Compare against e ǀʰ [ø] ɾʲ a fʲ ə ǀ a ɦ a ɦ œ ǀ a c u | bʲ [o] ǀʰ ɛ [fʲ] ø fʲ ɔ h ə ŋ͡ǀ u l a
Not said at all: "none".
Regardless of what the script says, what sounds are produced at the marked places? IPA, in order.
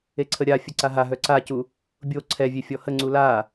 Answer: ə, o, vʲ

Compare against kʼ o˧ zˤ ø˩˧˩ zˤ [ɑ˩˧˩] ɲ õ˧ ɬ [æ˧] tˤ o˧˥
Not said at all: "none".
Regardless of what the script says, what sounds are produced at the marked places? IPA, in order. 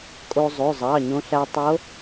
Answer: ɑ˩˧˩, æ˧

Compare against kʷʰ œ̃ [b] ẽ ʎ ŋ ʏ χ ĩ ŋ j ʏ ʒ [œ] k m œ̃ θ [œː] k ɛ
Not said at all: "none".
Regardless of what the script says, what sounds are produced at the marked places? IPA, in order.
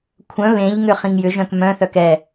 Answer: β, œ̃, œ

